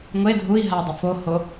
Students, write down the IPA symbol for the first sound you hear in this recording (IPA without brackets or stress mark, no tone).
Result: ŋʷ